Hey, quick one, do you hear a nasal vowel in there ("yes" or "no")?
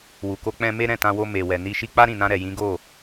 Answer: yes